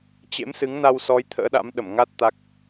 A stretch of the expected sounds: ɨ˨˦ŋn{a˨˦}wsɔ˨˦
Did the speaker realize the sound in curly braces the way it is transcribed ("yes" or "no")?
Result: no